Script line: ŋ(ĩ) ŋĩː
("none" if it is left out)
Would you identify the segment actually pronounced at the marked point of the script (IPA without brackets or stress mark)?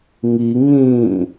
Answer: i